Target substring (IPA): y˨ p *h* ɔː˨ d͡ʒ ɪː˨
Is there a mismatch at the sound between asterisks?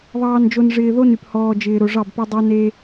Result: no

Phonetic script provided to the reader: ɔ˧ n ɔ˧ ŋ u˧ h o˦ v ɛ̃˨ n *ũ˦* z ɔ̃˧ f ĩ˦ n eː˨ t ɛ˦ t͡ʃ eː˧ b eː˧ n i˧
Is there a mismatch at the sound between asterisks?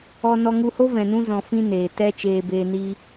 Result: yes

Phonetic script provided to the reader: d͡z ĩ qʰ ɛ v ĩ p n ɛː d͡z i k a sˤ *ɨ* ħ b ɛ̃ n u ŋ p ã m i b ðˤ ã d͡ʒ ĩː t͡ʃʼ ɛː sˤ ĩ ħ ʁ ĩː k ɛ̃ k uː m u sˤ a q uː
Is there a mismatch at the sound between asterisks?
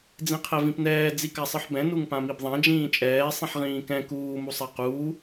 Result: no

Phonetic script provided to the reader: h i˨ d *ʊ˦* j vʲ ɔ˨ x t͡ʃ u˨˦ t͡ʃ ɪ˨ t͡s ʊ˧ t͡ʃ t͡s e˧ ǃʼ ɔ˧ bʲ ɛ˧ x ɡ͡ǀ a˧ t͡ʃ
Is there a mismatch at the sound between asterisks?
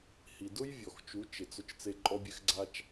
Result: no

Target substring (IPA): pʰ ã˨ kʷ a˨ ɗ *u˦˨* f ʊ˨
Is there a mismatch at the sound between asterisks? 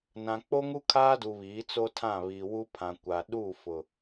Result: no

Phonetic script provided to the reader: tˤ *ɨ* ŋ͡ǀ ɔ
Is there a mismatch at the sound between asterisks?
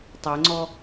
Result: yes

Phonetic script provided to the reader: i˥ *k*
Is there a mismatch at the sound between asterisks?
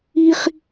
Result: yes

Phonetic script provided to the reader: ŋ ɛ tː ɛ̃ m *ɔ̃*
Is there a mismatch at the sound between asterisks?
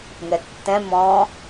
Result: no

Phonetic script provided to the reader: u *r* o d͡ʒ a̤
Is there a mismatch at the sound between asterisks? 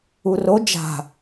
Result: no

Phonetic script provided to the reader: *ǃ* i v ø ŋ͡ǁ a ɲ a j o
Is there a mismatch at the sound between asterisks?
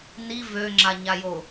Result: yes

